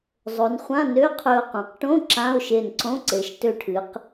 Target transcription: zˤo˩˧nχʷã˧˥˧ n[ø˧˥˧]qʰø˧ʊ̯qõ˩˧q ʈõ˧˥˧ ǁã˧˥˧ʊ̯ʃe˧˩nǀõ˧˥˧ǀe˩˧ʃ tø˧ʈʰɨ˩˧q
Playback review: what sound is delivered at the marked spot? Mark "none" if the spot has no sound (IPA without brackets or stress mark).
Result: ø˧˥˧